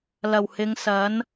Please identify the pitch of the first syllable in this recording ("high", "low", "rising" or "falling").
low